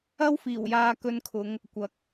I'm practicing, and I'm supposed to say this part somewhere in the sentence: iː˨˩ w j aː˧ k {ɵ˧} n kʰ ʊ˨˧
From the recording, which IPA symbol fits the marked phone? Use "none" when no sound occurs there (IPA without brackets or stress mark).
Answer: ɵ˧